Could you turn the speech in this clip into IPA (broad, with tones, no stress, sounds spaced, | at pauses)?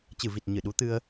t͡ɕ ɨ˧˩ v i˨˩ t̚ ɲ ɨ˧˩ ɗ u˨˦ t̪ ɨ˧ ə̯